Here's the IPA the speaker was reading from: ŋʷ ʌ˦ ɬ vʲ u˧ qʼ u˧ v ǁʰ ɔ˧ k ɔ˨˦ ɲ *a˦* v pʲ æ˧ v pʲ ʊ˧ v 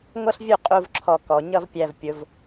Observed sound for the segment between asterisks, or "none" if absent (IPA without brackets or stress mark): ʌ˦